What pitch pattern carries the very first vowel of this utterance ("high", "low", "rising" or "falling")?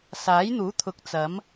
rising